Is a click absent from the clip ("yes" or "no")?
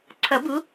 no